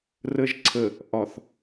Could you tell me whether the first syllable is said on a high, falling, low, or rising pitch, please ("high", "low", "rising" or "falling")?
low